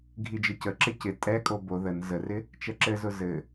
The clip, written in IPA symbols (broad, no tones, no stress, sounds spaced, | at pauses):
ɡʱ i d͡ʒ ɘ c ə ǁ ɪ c ɪ tʼ ɛ kʼ o b o ð ə n z ə r ɪ | t͡ʃ ɛ ǁ ɘ z ʊ z ɘ